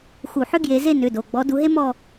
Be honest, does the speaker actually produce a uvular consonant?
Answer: no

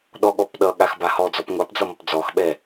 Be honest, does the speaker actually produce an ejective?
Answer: no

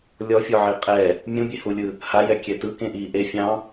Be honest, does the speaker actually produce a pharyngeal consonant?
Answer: yes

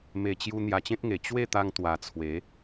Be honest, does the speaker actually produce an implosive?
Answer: no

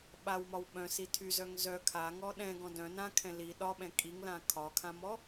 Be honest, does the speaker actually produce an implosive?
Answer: yes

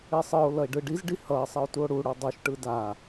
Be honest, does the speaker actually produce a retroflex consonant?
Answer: yes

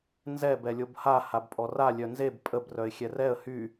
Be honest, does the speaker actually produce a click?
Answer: no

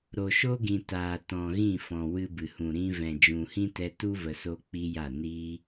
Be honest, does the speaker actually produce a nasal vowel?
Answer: yes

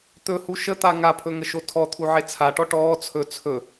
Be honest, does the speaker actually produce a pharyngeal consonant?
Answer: yes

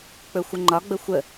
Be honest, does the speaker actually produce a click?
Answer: yes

